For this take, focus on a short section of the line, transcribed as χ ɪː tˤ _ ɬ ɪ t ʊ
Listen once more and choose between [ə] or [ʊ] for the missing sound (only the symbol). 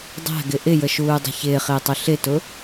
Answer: ʊ